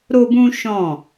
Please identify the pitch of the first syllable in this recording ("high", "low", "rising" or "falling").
high